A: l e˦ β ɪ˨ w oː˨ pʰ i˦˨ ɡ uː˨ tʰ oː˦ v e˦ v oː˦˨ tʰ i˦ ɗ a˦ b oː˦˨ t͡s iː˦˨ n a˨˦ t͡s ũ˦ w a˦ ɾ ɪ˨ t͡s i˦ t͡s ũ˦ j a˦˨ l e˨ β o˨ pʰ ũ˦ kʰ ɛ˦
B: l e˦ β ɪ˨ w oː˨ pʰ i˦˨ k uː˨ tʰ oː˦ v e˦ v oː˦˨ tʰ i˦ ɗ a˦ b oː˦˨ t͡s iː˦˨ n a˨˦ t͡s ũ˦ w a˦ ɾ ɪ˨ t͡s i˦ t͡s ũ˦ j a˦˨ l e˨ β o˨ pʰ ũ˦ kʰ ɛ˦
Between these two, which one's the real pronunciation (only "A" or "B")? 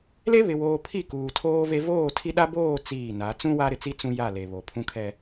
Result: B